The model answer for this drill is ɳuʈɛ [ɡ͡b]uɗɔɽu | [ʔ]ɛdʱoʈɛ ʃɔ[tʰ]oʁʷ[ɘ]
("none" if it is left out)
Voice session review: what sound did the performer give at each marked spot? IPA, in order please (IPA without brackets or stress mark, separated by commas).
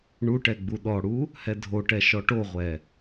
ɡ͡b, h, ʈ, ɛ